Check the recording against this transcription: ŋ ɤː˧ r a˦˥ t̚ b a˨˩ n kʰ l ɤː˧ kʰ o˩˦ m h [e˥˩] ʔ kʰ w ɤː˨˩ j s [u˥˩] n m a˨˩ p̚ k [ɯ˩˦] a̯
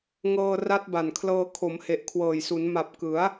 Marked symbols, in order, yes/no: no, no, yes

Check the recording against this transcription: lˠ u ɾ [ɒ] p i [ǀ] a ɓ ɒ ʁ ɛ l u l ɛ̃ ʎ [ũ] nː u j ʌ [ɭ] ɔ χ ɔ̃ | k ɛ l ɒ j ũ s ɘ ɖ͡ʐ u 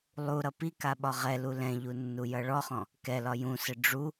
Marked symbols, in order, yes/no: no, no, no, yes

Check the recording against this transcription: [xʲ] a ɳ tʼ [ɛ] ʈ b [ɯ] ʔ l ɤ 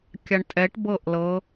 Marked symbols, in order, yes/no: no, yes, no

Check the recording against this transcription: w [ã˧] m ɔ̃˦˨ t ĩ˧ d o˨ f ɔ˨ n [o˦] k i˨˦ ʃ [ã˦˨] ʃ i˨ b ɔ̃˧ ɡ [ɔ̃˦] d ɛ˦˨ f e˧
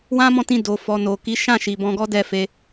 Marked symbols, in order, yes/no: no, no, yes, no

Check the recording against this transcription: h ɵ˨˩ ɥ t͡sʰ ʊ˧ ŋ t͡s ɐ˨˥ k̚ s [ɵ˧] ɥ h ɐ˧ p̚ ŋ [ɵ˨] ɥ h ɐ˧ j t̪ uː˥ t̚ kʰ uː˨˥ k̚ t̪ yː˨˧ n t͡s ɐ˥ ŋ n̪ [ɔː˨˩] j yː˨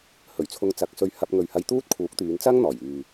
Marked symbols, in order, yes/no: yes, yes, yes

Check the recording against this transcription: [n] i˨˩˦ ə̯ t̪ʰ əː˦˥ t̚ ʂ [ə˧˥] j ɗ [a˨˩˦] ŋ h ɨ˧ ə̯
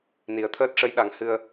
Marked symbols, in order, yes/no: yes, yes, yes

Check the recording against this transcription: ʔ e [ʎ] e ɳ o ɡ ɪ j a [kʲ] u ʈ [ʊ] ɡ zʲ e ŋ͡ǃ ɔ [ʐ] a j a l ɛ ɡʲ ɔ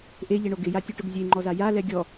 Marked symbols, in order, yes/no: yes, no, yes, no

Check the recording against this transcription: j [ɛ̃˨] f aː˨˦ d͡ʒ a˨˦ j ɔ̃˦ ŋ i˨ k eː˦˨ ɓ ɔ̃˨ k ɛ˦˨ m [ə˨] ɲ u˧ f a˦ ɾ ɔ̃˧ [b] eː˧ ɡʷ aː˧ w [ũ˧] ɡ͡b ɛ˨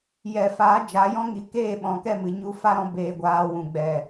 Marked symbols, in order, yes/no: no, no, yes, no

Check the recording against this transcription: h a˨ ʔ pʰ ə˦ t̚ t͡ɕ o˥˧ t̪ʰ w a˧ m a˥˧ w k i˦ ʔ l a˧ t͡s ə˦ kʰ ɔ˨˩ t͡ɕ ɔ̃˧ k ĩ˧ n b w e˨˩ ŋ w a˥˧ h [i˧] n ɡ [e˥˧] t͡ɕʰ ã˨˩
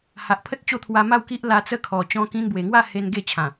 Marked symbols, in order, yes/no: no, yes

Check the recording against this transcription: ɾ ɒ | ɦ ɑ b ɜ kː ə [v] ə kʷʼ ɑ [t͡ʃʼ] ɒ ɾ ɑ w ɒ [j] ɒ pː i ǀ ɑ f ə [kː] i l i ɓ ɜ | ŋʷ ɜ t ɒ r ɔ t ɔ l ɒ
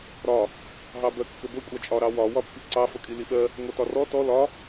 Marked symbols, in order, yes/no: no, yes, no, no

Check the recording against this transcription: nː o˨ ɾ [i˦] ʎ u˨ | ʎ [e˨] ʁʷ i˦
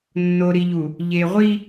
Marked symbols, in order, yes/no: no, yes

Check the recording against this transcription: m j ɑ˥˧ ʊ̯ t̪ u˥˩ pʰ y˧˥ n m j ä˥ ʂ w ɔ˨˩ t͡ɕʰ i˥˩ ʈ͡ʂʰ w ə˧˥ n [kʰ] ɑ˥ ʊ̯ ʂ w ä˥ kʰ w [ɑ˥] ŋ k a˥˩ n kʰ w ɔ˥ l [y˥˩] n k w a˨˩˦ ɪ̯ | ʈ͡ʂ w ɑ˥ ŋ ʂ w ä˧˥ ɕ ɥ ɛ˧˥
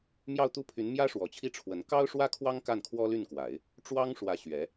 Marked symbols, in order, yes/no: no, yes, yes

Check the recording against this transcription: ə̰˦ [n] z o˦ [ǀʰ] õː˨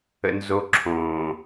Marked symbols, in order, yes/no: yes, no

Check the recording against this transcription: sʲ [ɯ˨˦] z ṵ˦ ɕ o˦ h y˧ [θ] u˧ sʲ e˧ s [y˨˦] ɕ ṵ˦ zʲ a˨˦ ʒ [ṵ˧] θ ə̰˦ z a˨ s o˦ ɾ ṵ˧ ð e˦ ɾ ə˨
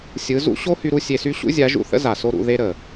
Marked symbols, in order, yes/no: yes, no, no, yes

